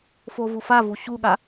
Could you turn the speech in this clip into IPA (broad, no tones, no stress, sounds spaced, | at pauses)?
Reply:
f o v u f a v u ɕ u ɠ a